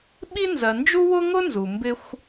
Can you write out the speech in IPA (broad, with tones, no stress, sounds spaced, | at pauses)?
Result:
ɓ i˥ n z ɜ˨ n d͡ʒ u˥ w ʊ˥ ŋ ʊ˥ n z u˩ m b ɪ˦ xʷ